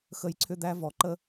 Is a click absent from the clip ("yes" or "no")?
no